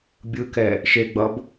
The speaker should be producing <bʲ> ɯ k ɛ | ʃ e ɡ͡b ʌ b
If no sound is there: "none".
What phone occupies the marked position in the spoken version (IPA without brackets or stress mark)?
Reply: bʲ